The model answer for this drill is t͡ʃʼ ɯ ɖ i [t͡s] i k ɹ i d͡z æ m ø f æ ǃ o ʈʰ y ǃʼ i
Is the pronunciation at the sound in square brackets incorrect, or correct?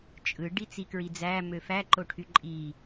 correct